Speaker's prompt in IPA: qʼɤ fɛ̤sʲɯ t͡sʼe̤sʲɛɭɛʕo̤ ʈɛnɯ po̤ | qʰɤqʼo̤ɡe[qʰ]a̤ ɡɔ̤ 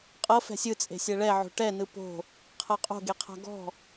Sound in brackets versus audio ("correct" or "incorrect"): correct